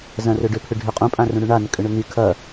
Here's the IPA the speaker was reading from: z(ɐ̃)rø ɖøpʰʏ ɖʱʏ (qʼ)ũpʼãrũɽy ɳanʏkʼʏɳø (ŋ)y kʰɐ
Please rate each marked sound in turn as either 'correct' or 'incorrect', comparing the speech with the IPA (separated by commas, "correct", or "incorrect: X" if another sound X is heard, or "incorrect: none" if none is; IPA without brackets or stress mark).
correct, correct, correct